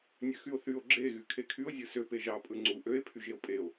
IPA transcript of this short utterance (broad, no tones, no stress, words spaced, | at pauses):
nʲøxyo̯θyo̯ ɡ͡ǁe ɣykʰekʰyo̯ zʲɯsø peʒɑ pʼɯŋ͡ǀu ʔøe̯ pʰyʒeo̯pʼeo̯